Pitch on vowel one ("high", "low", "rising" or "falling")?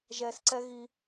low